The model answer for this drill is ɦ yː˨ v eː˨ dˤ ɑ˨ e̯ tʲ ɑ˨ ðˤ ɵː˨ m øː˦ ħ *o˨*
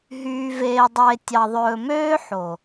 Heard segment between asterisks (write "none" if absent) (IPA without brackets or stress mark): o˨